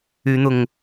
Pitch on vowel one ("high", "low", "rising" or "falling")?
rising